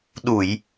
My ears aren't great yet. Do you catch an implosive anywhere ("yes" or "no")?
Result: yes